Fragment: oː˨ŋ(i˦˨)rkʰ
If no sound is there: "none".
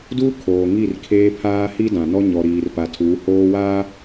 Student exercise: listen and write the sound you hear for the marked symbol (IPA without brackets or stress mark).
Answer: i˦˨